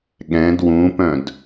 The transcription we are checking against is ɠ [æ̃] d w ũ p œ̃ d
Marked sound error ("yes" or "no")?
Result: yes